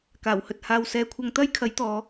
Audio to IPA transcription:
k aː˨˩ w h ɵ˨ t̚ h aː˨ w s ɛː˨˧ kʷʰ ɐ˧ ŋ t̪ ɐ˥ j kʰ ɐ˨˥ j t̪ ɔː˨˧

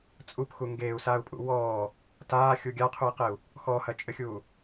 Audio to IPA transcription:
t͡sʼ u p x u ŋ ɡ eː u̯ s aː u̯ pʼ ṵ w ɔː | t aː xʲ u ɡʲ a qʰ u i̯ q e u̯ | x ɔ h ɐ t͡ʃʼ ɘ xʲ uː

